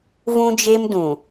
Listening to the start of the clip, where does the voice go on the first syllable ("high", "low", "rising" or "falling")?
high